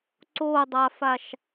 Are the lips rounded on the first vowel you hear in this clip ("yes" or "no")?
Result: yes